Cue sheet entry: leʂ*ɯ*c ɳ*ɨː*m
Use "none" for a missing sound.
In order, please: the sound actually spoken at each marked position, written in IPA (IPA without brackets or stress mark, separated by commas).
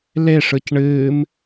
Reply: ɯ, ɨː